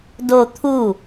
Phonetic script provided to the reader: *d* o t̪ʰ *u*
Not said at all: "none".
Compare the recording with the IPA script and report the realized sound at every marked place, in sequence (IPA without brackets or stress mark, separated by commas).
d, u